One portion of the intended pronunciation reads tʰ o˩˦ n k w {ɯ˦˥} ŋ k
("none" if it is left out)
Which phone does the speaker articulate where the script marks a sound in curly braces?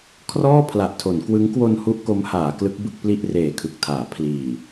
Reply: ɯ˦˥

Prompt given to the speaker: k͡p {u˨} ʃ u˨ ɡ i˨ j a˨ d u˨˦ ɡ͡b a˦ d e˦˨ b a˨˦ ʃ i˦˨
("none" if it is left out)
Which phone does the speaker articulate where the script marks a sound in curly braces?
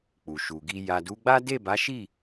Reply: u˨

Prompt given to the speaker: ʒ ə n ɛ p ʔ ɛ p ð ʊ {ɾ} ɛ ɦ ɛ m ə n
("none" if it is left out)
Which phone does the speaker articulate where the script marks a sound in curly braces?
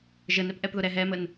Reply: ɾ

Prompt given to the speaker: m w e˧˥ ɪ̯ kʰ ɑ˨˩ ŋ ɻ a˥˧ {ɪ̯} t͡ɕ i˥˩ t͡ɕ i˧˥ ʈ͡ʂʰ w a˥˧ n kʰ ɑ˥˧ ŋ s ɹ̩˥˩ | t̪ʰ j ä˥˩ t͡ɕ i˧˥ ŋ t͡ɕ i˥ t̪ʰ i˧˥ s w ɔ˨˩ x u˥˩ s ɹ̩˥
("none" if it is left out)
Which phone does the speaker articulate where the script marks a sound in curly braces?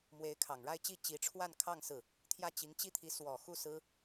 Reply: ɪ̯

